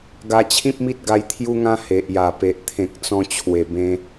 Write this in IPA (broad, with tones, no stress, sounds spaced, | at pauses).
ɡ a˧ t͡ɕʰ ĩ˦ p̚ m i˦ t̚ ɡ a˧ j t̪ʰ j u˦ ŋ ã˦ h e˨ ʔ j a˨˩ p e˨ ʔ t̪ʰ ẽ˨ k̚ t͡s ɔ̃˧ t͡ɕʰ w e˨˩ b ẽ˧